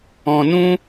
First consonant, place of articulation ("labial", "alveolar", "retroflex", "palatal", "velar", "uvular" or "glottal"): alveolar